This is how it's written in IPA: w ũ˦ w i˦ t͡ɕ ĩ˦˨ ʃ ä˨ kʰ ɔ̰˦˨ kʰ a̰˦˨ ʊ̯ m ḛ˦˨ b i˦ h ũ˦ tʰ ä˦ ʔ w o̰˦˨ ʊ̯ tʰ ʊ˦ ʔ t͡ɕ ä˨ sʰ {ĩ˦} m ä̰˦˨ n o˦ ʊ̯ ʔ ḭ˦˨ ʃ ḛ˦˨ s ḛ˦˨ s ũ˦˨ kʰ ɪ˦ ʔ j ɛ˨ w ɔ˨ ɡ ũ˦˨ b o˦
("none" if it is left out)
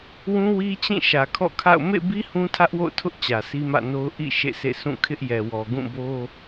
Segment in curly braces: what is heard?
i˦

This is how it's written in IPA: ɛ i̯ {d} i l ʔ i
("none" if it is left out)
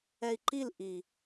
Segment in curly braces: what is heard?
ǃ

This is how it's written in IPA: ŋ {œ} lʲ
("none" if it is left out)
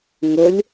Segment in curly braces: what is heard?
ə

